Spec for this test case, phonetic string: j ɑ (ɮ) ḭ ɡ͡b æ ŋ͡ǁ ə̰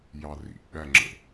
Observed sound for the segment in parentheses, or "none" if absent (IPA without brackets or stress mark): r